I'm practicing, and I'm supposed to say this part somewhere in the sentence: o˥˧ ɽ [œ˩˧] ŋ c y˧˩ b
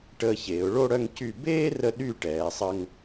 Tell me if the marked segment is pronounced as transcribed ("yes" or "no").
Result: no